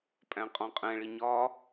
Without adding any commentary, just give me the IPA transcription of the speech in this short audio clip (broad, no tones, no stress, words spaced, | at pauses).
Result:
pʼæ̃qʼɔ̃qʼɛ̃ɭi ɲɒ